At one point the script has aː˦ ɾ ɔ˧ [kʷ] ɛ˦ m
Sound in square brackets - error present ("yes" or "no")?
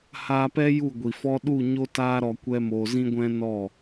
no